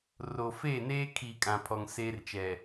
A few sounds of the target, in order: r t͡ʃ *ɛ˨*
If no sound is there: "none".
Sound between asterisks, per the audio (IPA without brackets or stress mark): ɛ˨